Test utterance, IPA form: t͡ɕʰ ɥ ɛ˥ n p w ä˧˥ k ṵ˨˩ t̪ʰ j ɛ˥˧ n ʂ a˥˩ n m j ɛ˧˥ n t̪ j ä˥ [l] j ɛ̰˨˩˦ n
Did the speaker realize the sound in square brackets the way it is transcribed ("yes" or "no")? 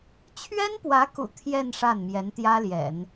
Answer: yes